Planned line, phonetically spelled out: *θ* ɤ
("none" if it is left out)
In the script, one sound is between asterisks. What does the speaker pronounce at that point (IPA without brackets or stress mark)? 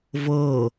v